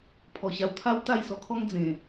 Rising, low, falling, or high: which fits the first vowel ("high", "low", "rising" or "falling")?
low